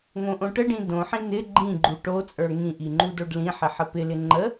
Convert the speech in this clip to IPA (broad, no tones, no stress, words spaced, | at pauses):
ŋõʔõʈəɖĩ dõħĩ n̪ɪ ɡ͡ǃĩɡ͡ǃu ʈot͡sʼə˞ ŋĩʔi ŋ͡ǃudoɖlĩħɪ ħəpɪlɪ ŋ͡ǃə